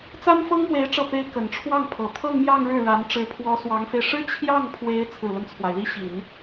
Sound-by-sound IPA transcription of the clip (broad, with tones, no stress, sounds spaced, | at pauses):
t͡s a˥ n f ɤ˥ ŋ m w e˧˥ ɪ̯ ʈ͡ʂ ɤ˥˩ p e˥ ɪ̯ k ə˨˩ n ʈ͡ʂʰ w ɑ˥˩ ŋ pʰ ɤ˨˩ t̪ʰ ɤ˥˧ ŋ m j ɑ˥˧ ŋ ɻ ɻ̩˥˩ ɻ a˧˥ n ʈ͡ʂ ɻ̩˧˥ pʰ w ɔ˧˥ s w ɑ˧˥ ŋ f e˧ ɪ̯ ʂ ɻ̩˥ t͡ɕʰ j ɑ˥˩ ŋ pʰ w e˧˥ ɪ̯ t͡sʰ ɹ̩˨˩ l ə˦ n t͡sʰ w a˩ ɪ̯ l i˥˩ ɕ i˨˩˦ n